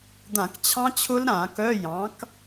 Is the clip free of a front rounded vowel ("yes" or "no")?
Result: no